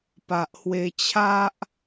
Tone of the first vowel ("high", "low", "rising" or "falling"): low